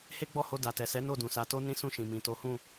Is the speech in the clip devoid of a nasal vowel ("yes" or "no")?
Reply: no